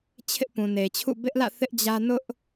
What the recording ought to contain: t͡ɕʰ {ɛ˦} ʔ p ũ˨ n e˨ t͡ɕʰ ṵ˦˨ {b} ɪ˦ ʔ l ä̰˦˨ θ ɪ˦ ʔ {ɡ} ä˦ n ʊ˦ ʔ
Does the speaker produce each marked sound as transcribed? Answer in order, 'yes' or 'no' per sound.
no, yes, no

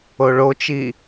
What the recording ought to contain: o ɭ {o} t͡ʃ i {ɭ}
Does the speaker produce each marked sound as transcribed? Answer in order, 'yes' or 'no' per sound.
yes, no

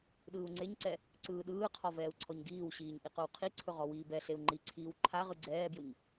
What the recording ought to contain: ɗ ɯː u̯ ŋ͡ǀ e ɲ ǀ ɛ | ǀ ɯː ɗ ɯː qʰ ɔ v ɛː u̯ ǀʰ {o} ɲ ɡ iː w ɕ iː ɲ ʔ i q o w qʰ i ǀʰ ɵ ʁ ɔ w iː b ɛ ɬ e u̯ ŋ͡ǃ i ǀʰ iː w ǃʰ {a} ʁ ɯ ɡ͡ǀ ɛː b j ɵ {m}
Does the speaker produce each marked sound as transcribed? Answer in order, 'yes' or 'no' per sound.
no, yes, no

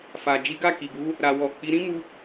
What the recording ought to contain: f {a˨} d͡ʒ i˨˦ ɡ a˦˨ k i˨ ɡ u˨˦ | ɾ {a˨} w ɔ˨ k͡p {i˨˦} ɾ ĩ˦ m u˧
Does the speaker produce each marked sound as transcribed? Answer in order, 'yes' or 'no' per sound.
yes, yes, yes

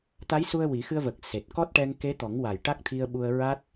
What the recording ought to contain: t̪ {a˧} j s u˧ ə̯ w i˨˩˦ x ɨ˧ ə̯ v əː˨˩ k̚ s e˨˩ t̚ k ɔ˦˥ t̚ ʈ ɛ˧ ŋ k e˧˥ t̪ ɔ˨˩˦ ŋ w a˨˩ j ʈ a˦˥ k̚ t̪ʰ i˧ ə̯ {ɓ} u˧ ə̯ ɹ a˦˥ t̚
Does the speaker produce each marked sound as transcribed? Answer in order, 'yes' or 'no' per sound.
no, yes

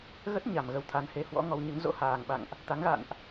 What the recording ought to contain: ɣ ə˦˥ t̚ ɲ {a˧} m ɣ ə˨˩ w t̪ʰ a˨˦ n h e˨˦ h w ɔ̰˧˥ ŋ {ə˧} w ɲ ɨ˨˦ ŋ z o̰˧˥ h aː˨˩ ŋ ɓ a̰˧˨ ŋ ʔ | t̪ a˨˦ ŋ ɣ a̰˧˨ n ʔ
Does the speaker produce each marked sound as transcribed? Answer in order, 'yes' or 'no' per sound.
no, no

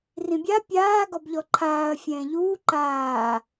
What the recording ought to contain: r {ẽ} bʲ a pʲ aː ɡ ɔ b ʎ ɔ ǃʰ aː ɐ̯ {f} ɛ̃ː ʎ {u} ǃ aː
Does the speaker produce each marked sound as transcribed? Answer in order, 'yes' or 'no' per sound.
no, no, no

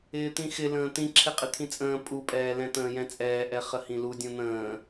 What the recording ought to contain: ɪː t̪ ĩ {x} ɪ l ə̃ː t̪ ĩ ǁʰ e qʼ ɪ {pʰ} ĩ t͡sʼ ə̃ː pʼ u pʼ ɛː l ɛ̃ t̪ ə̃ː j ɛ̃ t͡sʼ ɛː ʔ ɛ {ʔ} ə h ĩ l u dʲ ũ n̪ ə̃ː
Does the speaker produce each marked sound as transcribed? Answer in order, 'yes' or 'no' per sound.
yes, no, no

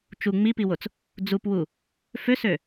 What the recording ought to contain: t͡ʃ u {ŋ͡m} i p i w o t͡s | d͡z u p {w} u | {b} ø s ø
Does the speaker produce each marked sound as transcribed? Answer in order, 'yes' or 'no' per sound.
yes, yes, no

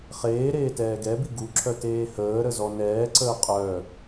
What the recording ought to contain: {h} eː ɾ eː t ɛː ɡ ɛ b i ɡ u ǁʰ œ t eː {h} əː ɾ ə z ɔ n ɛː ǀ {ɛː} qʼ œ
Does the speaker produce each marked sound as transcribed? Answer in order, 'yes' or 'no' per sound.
no, yes, no

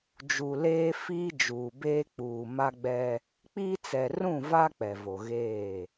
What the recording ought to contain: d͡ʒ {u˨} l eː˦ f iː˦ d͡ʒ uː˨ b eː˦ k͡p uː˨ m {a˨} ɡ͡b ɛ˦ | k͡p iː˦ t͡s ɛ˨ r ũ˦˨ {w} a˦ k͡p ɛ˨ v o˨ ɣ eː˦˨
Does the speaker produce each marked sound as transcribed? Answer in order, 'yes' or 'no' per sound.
yes, no, no

